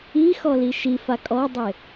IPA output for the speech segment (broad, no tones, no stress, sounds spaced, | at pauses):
i x ɔ l i ʃ i f a kʼ ɔ dˤ e